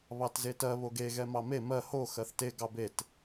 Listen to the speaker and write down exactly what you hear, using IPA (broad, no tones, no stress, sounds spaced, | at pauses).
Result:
β ɑ t z e t ɜ β o ɡ e ɣ ɛ m ɑ m e m ɜ h o x ɜ θ t e ɡ ɑ b e t